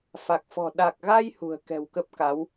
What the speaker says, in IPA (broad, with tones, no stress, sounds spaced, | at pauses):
f a˨˩ k̚ f ɔ̤˨˩ ɗ a˨˩ k̚ ɣ a˧ j h ṳ˨˩ ə̯ k ɛ̤˨˩ w k ə˦˥ p̚ k a˨˦ w